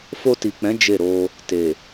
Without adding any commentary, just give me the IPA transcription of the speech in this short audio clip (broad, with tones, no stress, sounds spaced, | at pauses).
f o˧ t i˨ k͡p ɛ̃˨˦ d͡ʒ e˦˨ ɾ o˧ | t e˨